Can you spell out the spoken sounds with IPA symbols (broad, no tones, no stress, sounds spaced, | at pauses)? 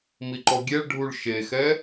m i ǃ ɔ ɡʲ e ɭ ɖʱ u ɭ ʃ e x ɛ